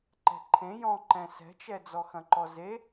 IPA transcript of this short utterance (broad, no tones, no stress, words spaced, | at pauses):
ǃɛ̤ǃʰẽ jɔ̃ǃɛ̃ sɛ̤t͡ʃɛ d͡zɔxɐ̃ǃɔze